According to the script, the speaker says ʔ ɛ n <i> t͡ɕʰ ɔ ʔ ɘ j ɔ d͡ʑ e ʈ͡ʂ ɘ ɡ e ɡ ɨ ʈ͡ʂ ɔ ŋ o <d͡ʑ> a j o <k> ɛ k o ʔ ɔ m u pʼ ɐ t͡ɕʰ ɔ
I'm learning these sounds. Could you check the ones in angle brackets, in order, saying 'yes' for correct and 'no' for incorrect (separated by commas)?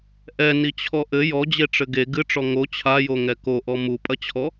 yes, no, no